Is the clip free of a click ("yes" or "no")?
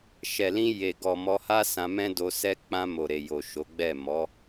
yes